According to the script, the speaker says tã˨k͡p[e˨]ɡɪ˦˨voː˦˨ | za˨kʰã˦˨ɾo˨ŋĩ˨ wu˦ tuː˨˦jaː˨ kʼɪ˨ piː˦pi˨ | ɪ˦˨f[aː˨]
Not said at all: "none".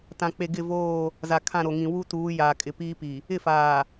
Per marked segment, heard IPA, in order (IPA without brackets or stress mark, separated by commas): e˨, aː˨